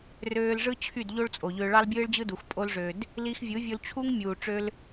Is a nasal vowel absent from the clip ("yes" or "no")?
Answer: yes